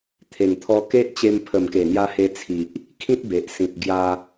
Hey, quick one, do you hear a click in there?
no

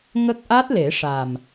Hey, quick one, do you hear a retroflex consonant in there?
yes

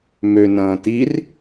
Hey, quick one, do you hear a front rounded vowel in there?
yes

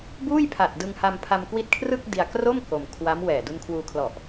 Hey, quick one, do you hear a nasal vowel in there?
no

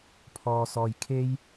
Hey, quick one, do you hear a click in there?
no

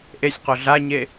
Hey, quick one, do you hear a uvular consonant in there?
yes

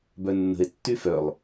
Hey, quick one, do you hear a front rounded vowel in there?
yes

